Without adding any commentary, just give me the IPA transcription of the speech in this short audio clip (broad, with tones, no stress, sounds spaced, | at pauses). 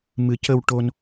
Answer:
m ɨ˨˩˦ c ə˧ w ʈ o˧ n